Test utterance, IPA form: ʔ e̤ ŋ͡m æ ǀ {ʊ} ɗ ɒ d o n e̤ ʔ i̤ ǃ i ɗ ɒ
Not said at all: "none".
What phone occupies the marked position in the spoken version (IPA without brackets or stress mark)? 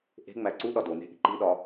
u